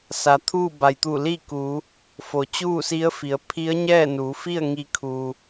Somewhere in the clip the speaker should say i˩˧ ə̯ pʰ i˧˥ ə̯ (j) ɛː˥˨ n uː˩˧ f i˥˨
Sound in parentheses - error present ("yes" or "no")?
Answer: yes